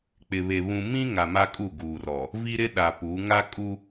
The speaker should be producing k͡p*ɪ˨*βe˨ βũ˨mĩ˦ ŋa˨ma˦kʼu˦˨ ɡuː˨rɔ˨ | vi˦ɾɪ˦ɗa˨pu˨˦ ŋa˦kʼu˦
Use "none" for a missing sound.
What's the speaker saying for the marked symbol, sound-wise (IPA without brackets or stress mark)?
ɪ˨